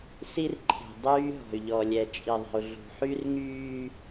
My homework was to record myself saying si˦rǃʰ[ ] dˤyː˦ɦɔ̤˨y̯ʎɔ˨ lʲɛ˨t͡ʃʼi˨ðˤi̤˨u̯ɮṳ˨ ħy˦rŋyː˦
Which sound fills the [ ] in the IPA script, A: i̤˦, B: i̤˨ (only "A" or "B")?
B